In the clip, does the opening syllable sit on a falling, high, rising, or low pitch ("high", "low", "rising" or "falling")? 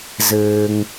low